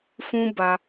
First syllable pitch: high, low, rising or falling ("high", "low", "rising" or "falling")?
high